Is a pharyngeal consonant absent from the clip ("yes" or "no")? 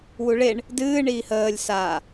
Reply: yes